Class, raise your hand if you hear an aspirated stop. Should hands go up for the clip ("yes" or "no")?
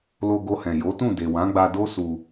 no